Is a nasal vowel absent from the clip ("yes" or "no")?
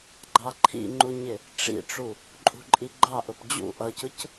yes